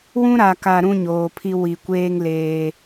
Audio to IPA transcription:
w ũ˦ ɾ a˨ k a˨ ɾ ũ˦ ɲ oː˨ pʰ i˦ w i˨ kʷ eː˦ ŋ l eː˦

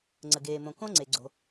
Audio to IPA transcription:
ŋ͡ǀ ə˩ ɡ eː˩ m õ˩ k õ˥ ŋ͡ǀ e˩ ɡ͡ǀ o̤˩

